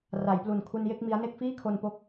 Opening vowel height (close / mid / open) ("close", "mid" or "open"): open